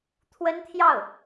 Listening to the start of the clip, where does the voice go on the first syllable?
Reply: high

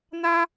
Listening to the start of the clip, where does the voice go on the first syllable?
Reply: high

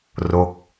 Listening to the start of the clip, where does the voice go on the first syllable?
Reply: falling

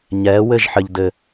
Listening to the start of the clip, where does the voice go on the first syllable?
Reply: rising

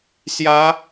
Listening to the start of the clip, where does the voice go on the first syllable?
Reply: rising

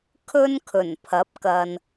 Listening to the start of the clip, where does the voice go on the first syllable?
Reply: high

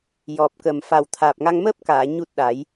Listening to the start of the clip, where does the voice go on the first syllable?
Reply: low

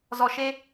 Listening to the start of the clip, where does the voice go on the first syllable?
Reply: low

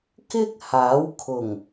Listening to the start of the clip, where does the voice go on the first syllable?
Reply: high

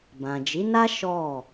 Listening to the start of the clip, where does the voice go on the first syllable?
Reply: low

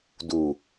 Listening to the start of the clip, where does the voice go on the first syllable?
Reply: low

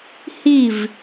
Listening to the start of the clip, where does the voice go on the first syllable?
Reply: falling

